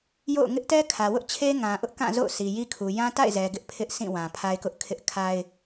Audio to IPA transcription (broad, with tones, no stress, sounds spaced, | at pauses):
j o̰˦˨ ʊ̯ ŋ ɪ˦ ʔ t ɛ˦ kʰ ä˨ w ʊ˦ ʔ t͡ɕʰ e˦ ŋ ã˨ ʔ ʊ˦ ʔ k ã˦˨ z o̰˦˨ ʊ̯ s i˨ j i˦ kʰ u˨ j ã˦ t a̰˦˨ ɪ̯ z ɛ˨ ɡ ɪ˦ ʔ pʰ ɪ˦ ʔ s ĩ˦˨ w ã˨ pʰ a˦ ɪ̯ k ʊ˦ ʔ kʰ ɪ˦ ʔ kʰ a˦ ɪ̯